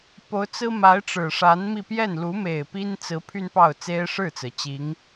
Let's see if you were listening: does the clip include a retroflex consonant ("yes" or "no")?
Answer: yes